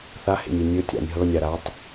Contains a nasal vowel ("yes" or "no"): no